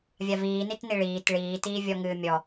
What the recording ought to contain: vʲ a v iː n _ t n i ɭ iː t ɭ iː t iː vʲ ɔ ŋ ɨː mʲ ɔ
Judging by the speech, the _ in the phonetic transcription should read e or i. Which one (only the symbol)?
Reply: i